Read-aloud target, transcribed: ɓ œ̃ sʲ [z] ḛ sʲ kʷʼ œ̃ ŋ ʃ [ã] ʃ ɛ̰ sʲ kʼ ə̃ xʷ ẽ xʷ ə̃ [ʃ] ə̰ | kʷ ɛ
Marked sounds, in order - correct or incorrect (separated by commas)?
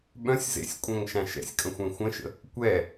correct, correct, correct